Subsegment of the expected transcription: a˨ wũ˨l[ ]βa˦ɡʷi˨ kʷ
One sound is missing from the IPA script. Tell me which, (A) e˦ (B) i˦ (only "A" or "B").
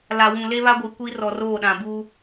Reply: A